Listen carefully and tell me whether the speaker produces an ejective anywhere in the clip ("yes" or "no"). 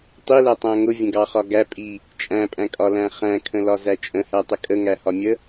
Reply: yes